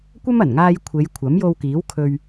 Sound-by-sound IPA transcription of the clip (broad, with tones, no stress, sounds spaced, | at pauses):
kʷ ɐ˥ m ɐ˨˩ n ŋ aː˧ j kʷʰ e˨˧ j kʷʰ ɐ˨˥ m j o˧ w k iː˨˥ w kʰ ɵ˧ ɥ